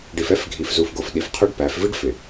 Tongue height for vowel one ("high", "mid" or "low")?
high